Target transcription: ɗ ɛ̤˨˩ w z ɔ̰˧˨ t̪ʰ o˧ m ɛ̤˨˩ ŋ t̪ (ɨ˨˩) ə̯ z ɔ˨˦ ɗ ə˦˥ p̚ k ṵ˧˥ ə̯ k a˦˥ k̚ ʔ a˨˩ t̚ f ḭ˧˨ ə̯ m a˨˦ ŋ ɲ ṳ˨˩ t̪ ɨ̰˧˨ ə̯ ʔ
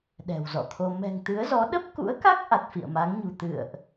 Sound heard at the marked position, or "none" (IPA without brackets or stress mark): ɨ˨˦